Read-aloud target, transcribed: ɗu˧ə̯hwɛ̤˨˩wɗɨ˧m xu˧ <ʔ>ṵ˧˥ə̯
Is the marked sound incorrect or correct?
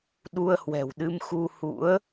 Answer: incorrect